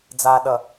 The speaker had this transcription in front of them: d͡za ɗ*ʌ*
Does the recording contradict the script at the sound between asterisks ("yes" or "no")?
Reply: no